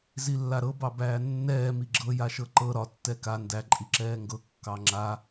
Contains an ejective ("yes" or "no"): yes